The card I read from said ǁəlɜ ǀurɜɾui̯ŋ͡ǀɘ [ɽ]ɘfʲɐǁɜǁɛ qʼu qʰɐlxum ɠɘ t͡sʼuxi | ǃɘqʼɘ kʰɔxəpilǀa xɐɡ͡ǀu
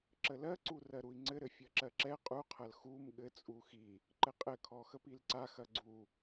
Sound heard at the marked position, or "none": ɾ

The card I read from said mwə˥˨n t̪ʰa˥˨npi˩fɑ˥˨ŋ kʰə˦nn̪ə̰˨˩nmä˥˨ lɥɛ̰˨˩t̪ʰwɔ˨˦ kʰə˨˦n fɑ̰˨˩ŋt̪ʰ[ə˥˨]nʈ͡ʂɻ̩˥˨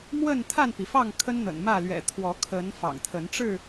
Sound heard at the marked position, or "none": ə˨˦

